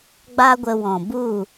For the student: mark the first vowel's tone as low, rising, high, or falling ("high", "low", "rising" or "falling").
high